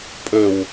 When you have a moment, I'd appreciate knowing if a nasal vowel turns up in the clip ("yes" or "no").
no